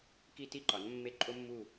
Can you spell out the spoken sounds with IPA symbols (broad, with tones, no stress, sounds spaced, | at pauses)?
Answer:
k i˦ t i˦ ǃ ɒ˩˥ n mː e˦˨ ǃʼ o˦ mː u˦˨